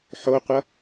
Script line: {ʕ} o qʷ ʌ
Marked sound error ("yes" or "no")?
yes